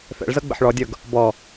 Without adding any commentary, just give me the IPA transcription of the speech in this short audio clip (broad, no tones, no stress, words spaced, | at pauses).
fɛ̰ɭzɤ ɡ͡bə̰ħɭɔdʲɤɡ | bɔ